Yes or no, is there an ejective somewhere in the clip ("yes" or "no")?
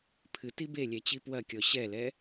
no